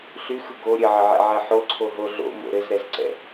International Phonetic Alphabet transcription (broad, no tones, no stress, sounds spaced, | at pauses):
ɬ y x ɯ ɡ o ɾʲ ɘ ʕ ə ʕ ɛ̰ ʕ ɛ ħ o ǀʰ o ɦ o ɮ o̰ m o̰ ɾ ɘ z ɾ ɛ z ǀ ɛ̰